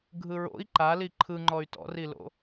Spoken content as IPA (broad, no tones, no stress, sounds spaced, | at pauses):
ɡʱ ɯ ɹ o̰ i̯ ǃ a l i ǃʰ ɯ ŋ͡ǃ ɔ y̯ t ɔ̰ r i l o̰